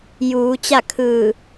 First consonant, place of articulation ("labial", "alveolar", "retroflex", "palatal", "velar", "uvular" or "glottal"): palatal